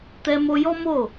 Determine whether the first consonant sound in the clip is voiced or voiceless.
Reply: voiceless